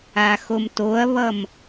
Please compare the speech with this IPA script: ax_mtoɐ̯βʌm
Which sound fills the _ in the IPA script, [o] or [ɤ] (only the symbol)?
o